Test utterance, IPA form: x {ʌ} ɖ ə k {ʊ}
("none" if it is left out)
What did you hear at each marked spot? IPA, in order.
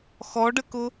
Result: ɔ, ʊ

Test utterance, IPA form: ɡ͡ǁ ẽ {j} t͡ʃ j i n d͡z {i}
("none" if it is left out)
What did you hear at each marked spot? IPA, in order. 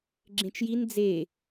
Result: none, e

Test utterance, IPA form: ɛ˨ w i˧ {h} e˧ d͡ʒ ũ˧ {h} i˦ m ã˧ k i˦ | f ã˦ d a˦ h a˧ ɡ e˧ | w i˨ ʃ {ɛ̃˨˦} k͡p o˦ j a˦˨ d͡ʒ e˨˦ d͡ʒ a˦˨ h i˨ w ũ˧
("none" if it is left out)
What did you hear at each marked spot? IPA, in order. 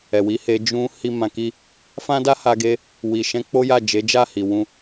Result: h, h, ɛ̃˨˦

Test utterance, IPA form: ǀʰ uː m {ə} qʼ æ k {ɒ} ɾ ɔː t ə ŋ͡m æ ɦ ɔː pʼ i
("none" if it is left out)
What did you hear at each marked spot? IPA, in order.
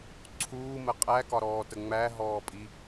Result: ə, ɒ

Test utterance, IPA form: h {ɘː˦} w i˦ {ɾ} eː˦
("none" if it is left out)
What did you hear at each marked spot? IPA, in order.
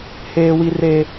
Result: eː˦, r

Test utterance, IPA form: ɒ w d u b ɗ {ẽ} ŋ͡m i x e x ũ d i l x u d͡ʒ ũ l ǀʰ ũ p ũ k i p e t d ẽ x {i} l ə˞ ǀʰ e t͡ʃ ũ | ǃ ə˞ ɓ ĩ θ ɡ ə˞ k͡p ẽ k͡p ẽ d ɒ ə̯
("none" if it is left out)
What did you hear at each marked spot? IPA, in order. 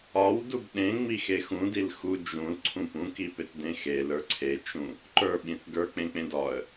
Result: ẽ, e

